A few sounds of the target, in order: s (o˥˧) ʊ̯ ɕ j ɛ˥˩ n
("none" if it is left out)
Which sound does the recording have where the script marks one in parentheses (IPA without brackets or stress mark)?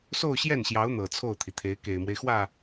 o˥˧